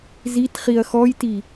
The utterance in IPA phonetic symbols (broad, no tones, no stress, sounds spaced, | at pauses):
z i t χ i ɐ̯ x ɔ j t i